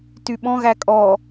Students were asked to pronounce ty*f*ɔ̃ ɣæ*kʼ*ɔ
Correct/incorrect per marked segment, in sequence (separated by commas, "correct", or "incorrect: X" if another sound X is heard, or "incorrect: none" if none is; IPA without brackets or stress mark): incorrect: ɓ, correct